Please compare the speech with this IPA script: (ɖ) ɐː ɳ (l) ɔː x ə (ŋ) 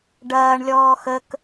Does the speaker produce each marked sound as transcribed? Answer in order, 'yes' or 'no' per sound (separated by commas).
yes, no, no